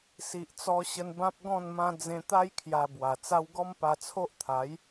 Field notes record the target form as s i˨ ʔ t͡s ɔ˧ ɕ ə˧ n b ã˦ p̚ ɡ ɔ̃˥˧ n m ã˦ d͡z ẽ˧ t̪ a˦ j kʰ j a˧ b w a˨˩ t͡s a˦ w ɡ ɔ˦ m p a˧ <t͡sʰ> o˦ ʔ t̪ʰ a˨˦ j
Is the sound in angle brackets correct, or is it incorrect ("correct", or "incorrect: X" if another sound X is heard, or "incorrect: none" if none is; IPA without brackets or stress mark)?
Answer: correct